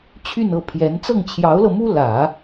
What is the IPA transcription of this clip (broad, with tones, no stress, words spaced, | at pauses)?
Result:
t͡ɕʰy˥˧nɤ˥˩ pʰjɛ˧˥n t͡sɤ˥˩ŋt͡ɕʰjɑ˧˥ʊ̯lɤ˧mu˥ lä˨˩˦